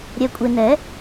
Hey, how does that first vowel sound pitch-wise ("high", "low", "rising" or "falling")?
low